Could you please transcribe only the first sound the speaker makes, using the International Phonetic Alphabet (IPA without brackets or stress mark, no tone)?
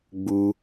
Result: ɡ͡b